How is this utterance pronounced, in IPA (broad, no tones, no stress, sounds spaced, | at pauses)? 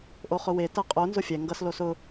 ʔ o χ ʊ w e t ɜ qʼ o n z ʊ fʲ ɛ ŋ ɡ ʌ s l o s ʊ